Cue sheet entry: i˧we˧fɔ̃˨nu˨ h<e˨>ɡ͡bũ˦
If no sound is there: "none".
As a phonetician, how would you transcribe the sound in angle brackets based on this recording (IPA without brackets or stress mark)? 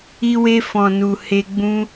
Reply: e˧